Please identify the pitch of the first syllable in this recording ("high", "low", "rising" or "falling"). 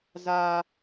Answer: high